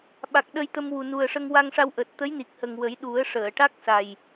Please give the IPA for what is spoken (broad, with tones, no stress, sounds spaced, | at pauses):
ɓ a˨˩ k̚ ɗ ə˧ j t̪ ə˧ m w u˨˩ n u˨˩ ə̯ ʂ ə˧ ŋ w a˧ ŋ ʂ a˧ w ʔ əː˨˩ t̚ t̪ ə˧˥ j n i˨˩ k̚ h ə˨˩ ŋ w ə˨˩˦ j ɗ u˨˩˦ ə̯ ʂ əː˨˩˨ ʈ a˦˥ k̚ s a˨˩ j